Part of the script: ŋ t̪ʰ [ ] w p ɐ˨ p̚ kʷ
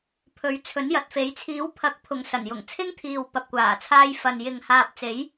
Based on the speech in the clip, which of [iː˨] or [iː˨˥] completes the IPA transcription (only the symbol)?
iː˨